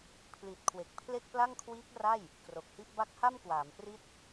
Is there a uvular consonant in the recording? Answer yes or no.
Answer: no